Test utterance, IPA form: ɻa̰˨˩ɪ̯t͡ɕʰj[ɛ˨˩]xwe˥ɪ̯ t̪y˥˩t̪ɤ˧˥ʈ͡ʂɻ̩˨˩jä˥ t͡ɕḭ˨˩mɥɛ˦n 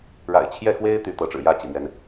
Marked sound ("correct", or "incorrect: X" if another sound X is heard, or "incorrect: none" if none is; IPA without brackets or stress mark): incorrect: ɛ˥˩